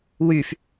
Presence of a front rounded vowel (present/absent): present